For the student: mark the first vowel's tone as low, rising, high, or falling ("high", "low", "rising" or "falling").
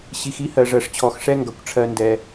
low